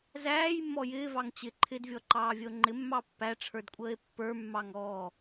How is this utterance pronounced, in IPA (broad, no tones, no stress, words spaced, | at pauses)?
zæːjmːɔ jɪːvɑŋ t͡ɕɪ ǃʰɪdvʲɔǃɑːvʲəo̯ ŋ͡ǃɪmːɑ pːæʈ͡ʂʰə˞dkʷʼəːe̯ pːə˞mːɑŋɔː